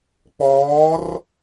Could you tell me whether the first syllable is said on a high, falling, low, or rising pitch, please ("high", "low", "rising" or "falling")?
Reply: rising